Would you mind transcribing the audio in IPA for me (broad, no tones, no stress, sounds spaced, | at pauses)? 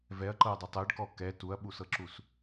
v ɛ ɐ̯ ǃ ɤ ɐ̯ dˤ ɛ tˤ ɛ ɖ k ɔ k ɛ t u ɐ̯ ɓ u s ɤ ǁ u s